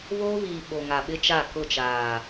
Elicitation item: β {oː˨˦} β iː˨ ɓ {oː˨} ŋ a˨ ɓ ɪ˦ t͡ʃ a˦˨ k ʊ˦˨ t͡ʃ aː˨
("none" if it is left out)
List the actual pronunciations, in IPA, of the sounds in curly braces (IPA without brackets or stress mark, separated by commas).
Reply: oː˦, o˨